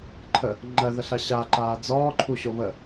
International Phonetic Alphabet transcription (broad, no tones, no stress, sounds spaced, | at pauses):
ǃʰ ə | ŋ͡ǃ ɜ ð ə ɬ a ɕ a ǃ aː d͡z ɔː ǃʰ u ɕ o β ə